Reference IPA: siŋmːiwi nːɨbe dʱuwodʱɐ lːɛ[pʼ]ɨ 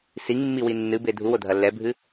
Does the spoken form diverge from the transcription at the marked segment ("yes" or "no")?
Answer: yes